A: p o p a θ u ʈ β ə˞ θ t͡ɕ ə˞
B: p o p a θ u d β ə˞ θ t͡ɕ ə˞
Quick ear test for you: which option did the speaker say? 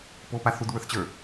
B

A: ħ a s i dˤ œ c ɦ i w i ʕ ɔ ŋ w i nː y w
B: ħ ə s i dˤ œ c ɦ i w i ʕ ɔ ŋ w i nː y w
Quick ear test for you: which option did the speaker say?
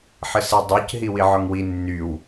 B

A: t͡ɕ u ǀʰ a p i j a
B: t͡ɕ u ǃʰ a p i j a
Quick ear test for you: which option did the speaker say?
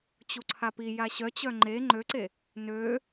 A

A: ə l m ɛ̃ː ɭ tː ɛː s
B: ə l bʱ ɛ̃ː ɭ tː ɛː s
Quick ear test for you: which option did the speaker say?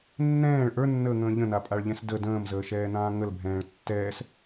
B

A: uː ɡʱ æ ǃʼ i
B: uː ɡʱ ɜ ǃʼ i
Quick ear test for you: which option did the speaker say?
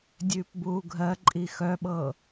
B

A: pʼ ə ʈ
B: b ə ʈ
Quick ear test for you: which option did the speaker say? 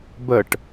B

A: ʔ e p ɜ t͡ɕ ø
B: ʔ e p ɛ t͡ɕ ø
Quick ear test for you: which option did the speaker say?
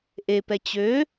B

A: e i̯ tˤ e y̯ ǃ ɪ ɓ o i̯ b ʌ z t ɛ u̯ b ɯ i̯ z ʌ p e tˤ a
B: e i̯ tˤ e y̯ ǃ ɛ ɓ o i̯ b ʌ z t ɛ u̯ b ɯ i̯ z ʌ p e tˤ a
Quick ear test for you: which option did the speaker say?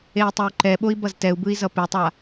B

